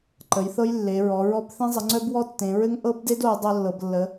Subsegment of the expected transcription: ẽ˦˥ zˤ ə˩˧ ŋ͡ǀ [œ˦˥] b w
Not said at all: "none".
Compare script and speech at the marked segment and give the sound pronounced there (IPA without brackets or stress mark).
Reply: œ˦˥